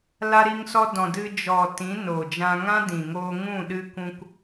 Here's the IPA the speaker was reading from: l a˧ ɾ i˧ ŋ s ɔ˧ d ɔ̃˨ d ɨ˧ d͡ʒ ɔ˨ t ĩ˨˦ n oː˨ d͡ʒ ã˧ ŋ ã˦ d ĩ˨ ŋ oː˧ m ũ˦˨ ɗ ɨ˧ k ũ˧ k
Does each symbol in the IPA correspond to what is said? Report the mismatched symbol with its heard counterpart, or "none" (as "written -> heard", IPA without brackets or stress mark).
m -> ŋ